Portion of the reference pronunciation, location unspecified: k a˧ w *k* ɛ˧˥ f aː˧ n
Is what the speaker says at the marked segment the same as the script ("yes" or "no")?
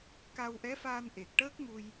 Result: no